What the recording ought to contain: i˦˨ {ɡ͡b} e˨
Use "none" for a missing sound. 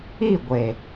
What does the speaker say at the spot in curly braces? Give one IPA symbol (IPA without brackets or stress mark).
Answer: ɡʷ